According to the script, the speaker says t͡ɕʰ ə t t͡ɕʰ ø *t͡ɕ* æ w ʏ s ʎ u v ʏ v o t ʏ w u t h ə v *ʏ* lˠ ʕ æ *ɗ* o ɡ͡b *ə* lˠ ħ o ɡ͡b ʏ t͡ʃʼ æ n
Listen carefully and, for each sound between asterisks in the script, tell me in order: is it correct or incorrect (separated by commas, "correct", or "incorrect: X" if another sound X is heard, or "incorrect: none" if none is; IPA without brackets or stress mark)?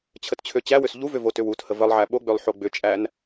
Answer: correct, incorrect: ə, incorrect: ɓ, incorrect: ø